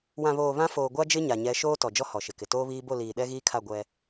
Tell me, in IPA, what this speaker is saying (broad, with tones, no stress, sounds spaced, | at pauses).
w ã˨ β oː˨ β ã˦ f oː˨ ɡʷ a˦ d͡ʒ ɪ˦ ɲ a˨ ɲ ɛ˨˦ ʃ oː˦ t ɔ˨ d͡ʒ ɔ˦ h ɔ˨ ʃ ɪ˨ k ɪ˨ t oː˦ β iː˦ b o˦˨ l iː˨ ɗ ɛ˦ ɣ iː˦ kʰ a˦˨ ɡʷ ɛ˦